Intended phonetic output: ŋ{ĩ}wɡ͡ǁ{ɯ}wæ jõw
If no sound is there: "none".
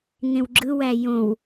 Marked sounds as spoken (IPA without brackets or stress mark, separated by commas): ẽ, ɯ